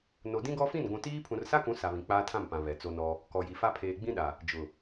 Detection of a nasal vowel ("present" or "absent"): present